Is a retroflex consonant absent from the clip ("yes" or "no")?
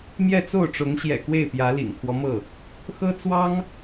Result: no